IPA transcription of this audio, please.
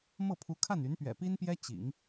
mɤ˥˩pʰu˧˥kʰa˥˩n y˧˥npɥɛ̰˨˩pi˥npjɛ˥ t͡ɕḭ˨˩˦ŋ

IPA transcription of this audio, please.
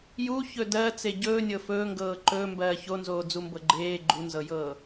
juçɵ dɜt͡se ɟɵːnʲɤ fɵːŋɡɤː ǃɵːmbɜː çonzoːd͡zumbɤ ɡ͡ǃeː ɡ͡ǃunzɤjɤː

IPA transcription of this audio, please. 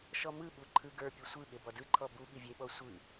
ʃɔmɯɓu ǃʰɯɡə˞pʲɯ sʷɯ ɠebɔdɯǃʰɔ bu ɠivʲeɓɔ sʷɯ

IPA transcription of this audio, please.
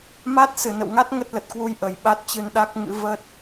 ma˦˥t̚ sɨ˧˩nə̰˧˨wŋa˦˥t̚ ŋə˦˥t̚lə˨˩t̚kwu˧j ʔə˨˩jɓa˦˥t̚t͡ɕɨ˧n ɗa˦˥k̚ŋɨ̰˧˥ və˦˥t̚

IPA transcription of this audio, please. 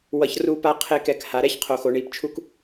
wʌ˧çruː˦pa˦ qʰe˦kɛ˧k ha˨ɾɛ˦çqʰo˨xo˨ ɳiː˨pt͡ʃʰu˦k

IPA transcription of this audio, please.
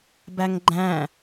bæŋɡ͡ǃæ̃

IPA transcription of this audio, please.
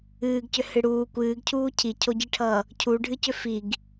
ɨːɡcʏhɨ ɽuː kʷɨːɡcʰuː cʰicʰoɟiʈʰʌː | cʰuɖʱɨcʏ fiɡ

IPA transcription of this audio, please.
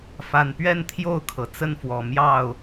fa˨˩npɥɛ˥˨n t̪ʰjo˥˨ʊ̯kʰɤ˩ t͡sə˥˨nfwɔ˨˩ mjɑ˥˨ʊ̯

